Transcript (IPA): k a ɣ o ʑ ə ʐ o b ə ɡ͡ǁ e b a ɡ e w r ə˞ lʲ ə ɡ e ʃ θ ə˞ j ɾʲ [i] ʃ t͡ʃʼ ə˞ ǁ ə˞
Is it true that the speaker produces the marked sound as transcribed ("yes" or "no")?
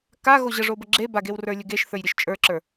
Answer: no